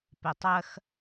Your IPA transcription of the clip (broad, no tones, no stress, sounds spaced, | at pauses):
p e tˤ ɜ x